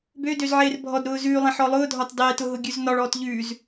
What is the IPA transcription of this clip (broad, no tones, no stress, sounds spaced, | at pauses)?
b ø d ø z ʕ eː r bʱ ɔ d ɾ ʊː z ʉː lˠ ẽ ħ ɔ lˠ ʊː dʱ ɒ t dˤ eː t ʊ ɦ ʊ ɡʲ ʉ z n ɒ ɭ ɔː t ʎ ʉ z